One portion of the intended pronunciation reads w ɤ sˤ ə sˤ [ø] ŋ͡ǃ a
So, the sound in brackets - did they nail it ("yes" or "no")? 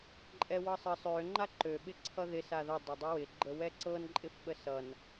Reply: yes